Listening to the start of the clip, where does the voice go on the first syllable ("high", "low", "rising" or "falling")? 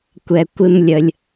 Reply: low